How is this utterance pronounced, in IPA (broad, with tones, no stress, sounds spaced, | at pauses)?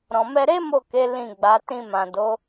ɾ ɔ̃˨ m ɛ˧ ɾ e˦ m o˦˨ k e˨˦ l ĩ˦˨ ɡ͡b a˨˦ t ĩ˧ m ã˨ d o˨˦